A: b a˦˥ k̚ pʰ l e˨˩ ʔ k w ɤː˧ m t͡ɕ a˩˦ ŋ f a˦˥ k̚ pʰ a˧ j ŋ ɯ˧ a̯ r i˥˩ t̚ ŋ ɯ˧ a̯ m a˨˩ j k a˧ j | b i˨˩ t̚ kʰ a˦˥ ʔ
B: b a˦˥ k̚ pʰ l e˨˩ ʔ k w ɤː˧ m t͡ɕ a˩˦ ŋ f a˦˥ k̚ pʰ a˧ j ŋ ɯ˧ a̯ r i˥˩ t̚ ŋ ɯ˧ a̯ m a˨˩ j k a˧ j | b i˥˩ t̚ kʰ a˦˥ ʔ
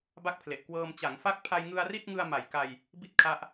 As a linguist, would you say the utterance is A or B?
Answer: B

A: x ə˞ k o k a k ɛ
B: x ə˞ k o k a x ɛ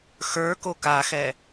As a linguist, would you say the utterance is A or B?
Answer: B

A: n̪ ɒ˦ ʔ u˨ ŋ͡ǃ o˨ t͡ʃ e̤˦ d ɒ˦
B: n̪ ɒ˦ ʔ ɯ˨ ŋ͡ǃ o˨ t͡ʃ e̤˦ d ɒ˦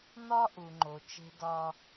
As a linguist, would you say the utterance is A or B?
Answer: A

